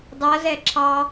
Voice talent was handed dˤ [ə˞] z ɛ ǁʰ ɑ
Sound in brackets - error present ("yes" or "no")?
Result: yes